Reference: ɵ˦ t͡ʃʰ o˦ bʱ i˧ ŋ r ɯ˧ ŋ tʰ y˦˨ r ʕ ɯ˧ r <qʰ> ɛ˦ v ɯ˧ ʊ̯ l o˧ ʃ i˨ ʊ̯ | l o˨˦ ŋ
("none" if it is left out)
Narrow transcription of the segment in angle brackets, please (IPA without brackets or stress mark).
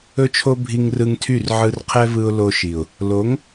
qʰ